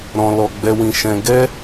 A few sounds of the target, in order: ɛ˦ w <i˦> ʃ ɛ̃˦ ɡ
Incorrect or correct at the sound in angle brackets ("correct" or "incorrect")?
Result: incorrect